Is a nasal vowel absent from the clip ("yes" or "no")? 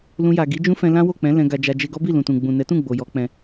no